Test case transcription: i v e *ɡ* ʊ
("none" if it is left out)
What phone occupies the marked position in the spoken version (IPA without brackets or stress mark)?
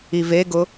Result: ɡ